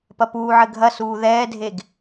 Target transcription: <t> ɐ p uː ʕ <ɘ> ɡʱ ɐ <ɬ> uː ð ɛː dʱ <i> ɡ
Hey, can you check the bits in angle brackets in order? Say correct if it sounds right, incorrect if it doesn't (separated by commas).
incorrect, correct, incorrect, incorrect